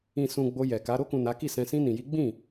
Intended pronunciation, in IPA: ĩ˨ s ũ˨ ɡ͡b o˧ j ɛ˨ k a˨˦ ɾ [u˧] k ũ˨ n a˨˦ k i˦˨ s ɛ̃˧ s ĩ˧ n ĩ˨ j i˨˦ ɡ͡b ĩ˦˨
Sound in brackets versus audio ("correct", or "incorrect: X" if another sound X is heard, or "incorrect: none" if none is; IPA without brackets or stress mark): incorrect: o˧